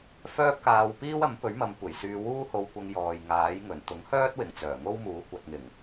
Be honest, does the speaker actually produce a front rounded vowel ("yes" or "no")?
yes